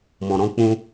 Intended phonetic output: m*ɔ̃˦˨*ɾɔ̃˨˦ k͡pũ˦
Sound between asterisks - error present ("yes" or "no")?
yes